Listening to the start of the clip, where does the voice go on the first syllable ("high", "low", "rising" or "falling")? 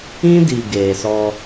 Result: high